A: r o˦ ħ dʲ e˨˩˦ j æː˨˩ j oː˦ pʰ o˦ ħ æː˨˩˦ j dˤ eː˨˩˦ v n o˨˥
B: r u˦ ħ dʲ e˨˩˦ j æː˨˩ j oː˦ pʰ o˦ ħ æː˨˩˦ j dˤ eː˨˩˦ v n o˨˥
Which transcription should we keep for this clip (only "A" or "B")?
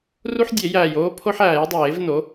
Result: B